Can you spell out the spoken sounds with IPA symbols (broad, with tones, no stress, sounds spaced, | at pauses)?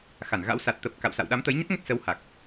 x a˧˩ n ɣ a̰˧˥ w s a˨˩ t̚ t̪ ə˨˩ p̚ k a̰˧˨ w s a̰˧˨ w ɗ a˨˦ m t̪ ə˨˦ j ɲ ə˦˥ t̚ ŋ ə˦˥ t̚ s ə˨˦ w h a˨˩ k̚